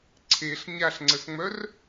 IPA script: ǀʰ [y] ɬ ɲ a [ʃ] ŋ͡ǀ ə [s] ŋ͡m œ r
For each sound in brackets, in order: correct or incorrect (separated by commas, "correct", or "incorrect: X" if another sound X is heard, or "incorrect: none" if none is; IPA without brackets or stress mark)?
incorrect: e, incorrect: ɬ, correct